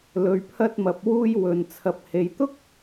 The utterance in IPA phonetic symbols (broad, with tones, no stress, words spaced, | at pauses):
lɵ˨ɥpʰɐ˧t̚mɐ˨p̚wuː˧j wɵ˨n t͡sʰɐ˨p̚he˨jt̪ʊ˥k̚